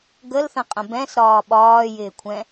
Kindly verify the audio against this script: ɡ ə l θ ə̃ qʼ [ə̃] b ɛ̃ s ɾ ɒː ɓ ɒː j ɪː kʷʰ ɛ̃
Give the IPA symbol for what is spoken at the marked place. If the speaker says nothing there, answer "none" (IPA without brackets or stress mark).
ə̃